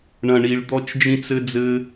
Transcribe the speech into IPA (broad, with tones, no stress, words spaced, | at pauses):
ɳɐ̃˨ɳi˨ɭ d̪ɔ˥t͡ʃd͡ʒĩ˥t͡s ɘ˦d͡zɘ˦